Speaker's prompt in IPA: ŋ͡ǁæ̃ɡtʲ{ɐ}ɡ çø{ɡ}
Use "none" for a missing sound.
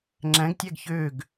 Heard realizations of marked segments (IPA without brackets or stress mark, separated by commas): æ, ɡ